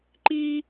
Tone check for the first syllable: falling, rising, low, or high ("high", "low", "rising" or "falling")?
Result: high